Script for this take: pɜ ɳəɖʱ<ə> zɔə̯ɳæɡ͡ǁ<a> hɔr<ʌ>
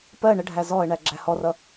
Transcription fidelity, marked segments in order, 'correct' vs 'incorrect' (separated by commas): incorrect, incorrect, correct